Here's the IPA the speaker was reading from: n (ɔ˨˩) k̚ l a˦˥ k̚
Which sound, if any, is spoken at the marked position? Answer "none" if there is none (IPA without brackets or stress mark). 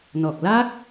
ɔ˨˩